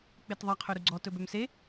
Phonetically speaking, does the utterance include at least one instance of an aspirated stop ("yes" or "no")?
yes